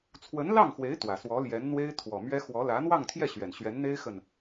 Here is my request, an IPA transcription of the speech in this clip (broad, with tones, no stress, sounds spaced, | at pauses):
t͡sʰ w ə˧˥ n l ɑ˥˩ ŋ x w e˧˥ ɪ̯ t̪ w ä˨˩ s w ɔ˧˥ l j ɛ˧˥ n n̪ w e˥ ɪ̯ t̪ʰ w ɔ˨˩ m ɥ ɛ˥ x w ɔ˧˥ l ä˧˥ n̪ w ɑ˥˧ ŋ t̪ʰ j ɛ˥˩ ɕ ɥ ɛ˨˩ n ɕ ɥ ɛ˧˥ n n̪ e˥ ɪ̯ x ə˨ n